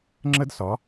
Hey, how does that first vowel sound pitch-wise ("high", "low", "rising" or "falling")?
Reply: high